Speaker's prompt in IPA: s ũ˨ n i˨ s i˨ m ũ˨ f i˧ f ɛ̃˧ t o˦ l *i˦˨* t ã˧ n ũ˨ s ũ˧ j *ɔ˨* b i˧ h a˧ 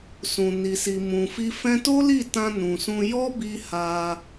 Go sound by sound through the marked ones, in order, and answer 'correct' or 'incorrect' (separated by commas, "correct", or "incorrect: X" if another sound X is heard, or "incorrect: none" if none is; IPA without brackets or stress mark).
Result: correct, incorrect: ɔ˦